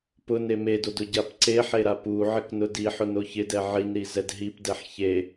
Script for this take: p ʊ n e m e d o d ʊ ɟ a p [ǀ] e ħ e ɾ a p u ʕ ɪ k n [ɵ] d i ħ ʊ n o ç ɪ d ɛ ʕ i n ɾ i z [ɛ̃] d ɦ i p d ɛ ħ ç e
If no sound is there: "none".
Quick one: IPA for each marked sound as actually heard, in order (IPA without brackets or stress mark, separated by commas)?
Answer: ǀ, ʊ, ɛ